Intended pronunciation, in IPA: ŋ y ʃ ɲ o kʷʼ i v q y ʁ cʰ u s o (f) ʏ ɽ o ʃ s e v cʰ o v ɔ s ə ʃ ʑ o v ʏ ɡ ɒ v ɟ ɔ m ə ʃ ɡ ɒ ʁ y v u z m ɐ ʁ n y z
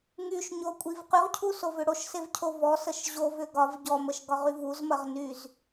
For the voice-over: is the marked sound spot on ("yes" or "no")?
no